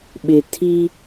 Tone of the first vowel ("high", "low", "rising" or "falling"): low